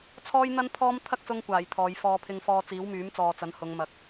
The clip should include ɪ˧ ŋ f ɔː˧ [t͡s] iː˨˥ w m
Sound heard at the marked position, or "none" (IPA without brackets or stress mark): t͡s